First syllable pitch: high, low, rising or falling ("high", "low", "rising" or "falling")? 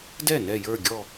falling